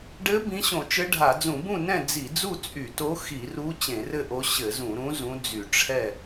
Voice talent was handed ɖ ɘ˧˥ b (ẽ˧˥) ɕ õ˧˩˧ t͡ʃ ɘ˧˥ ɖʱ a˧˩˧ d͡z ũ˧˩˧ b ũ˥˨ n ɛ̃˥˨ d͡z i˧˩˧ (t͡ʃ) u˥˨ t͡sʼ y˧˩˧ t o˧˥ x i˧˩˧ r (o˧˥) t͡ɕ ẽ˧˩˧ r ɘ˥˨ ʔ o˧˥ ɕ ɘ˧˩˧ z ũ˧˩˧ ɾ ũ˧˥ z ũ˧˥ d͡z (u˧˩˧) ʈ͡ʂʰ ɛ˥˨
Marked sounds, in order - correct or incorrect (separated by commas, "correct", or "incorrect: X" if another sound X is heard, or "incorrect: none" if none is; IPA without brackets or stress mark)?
incorrect: ĩ˧˥, incorrect: d͡z, incorrect: u˧˥, incorrect: y˧˩˧